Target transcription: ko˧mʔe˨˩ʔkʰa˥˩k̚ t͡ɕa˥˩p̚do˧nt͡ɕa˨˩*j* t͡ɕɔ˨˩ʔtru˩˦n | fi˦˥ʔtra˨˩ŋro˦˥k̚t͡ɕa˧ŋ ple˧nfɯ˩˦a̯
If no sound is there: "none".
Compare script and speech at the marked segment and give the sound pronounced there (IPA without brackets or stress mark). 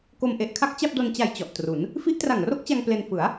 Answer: j